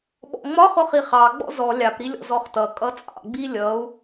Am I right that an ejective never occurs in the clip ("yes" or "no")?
no